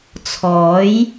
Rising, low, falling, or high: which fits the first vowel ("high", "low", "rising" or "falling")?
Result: rising